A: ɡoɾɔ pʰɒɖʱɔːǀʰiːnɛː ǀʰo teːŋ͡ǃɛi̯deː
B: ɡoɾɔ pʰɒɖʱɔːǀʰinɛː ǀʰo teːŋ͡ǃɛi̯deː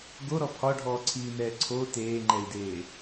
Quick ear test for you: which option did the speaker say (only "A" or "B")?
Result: A